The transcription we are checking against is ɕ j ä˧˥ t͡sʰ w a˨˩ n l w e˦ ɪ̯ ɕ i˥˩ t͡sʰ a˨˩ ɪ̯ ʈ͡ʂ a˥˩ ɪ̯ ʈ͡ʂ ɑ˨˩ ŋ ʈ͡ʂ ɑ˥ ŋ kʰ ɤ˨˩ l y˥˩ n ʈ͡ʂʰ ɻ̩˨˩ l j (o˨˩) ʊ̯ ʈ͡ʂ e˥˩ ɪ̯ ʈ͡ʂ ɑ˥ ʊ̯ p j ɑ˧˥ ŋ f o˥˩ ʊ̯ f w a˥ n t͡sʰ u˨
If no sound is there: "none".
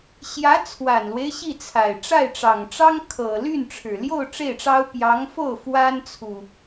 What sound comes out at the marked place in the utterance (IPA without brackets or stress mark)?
o˥˧